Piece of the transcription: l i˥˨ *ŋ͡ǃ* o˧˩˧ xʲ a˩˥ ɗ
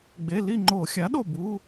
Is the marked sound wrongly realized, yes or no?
no